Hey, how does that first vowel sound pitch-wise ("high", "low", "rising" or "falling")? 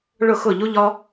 falling